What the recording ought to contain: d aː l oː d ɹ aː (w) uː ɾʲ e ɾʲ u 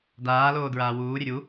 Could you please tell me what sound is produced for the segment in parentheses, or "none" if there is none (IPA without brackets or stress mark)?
w